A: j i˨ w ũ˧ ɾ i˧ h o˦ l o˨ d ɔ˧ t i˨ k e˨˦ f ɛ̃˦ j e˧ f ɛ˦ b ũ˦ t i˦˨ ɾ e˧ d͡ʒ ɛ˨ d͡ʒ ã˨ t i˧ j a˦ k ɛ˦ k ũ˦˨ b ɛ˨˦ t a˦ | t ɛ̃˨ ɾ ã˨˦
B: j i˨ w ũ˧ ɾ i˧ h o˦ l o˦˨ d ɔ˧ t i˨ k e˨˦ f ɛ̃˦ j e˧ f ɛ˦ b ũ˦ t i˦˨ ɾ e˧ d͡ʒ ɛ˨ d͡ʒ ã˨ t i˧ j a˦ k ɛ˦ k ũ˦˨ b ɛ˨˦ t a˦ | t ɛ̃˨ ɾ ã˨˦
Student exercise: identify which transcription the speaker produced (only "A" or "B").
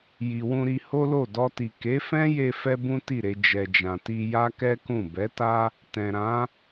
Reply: B